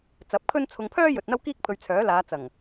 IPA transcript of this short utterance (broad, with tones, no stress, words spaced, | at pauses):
t͡sɐ˨˥p̚kʰɵ˥nt͡sʰʊ˧ŋ pʰœː˥ jɵ˨t̚n̪ɐ˥wkiː˥k̚ pʰɵ˧ɥt͡sʰœː˨˥ laː˨˧ t͡sɐ˨˩ŋ